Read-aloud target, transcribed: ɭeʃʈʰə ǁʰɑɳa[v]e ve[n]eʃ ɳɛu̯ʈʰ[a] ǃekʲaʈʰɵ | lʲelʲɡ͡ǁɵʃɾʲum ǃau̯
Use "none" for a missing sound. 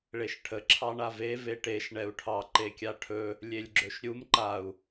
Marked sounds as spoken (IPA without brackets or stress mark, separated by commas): v, ʈ, ɑ